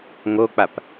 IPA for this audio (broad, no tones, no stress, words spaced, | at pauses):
ŋok͡pap